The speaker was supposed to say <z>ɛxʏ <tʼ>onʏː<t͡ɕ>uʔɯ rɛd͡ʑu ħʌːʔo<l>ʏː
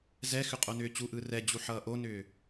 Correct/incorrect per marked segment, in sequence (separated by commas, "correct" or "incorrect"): correct, incorrect, correct, incorrect